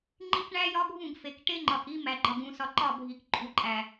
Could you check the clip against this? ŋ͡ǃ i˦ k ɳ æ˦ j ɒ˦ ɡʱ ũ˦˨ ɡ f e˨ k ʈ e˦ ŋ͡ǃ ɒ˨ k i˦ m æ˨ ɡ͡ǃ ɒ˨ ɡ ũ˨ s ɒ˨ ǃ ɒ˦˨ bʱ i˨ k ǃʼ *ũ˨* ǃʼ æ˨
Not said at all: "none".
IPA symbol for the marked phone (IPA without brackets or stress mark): u˨